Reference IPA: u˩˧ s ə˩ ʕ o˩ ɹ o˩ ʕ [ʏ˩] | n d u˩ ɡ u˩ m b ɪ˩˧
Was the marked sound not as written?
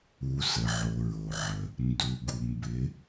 yes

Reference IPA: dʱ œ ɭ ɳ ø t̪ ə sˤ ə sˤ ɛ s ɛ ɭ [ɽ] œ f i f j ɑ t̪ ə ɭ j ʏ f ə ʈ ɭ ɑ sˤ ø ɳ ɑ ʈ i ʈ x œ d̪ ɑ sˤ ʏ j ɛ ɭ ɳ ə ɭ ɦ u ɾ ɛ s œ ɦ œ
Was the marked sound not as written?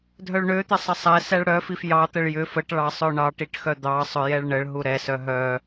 no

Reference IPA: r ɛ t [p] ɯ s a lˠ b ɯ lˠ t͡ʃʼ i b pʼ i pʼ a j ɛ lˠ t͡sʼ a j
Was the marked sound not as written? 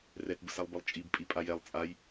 yes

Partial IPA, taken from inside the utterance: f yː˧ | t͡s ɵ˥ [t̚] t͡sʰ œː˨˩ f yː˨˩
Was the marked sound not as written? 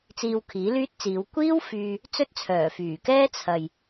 no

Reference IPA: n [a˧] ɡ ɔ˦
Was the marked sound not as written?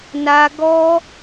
no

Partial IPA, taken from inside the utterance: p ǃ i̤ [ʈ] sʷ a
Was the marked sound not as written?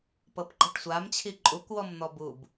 no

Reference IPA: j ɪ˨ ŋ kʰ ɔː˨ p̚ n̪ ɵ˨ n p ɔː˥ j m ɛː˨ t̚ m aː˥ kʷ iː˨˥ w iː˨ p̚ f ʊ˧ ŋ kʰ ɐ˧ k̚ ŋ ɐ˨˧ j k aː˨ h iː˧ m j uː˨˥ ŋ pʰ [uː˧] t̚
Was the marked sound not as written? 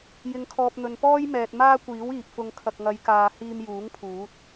yes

